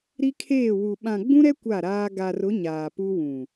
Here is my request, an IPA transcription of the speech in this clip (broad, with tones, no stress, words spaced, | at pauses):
ɾi˦kʰeː˦˨wu˨ ɓã˨ɡ͡bũ˦ɾɛ˦ kʷa˦˨ɾaː˦ ɡa˨rʊ˨˦ ɲaː˨pu˦wũ˨